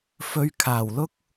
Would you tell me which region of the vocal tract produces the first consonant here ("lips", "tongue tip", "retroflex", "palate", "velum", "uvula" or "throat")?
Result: lips